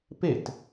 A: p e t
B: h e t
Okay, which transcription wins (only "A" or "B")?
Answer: A